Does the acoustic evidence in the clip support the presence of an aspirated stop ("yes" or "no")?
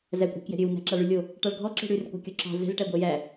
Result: no